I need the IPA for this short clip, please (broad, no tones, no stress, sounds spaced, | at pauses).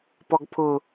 p ɔ ɡ pʰ ʊ